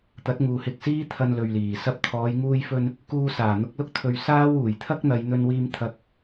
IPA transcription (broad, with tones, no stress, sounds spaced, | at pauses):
t̪ ɐ˨˥ t̚ ŋ uː˨ h ɪ˧ k̚ s iː˥ t̪ʰ ɐ˧ n l ɵ˨ ɥ l iː˨˩ s ɐ˥ p̚ t̪ʰ ɔː˨˧ j ŋ uː˧ j f ɵ˧ n | k uː˧ s aː˨˩ n̪ ʊ˧ k̚ l ʊ˥ k̚ t̪ʰ ɵ˧ ɥ s aː˥ w uː˨˩ j t̪ʰ ɐ˥ k̚ n̪ ɐ˨˧ j n̪ ɵ˧ n w iː˧ m t̪ʰ ɐ˧ k̚